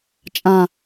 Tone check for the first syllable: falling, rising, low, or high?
low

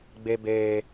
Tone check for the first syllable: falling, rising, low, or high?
low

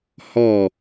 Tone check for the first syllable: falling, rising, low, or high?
falling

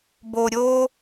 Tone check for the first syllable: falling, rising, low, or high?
low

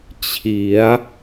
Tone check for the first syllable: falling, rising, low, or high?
rising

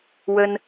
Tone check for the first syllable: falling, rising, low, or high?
high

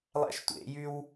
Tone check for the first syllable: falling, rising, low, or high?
high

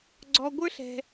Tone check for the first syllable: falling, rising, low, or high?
low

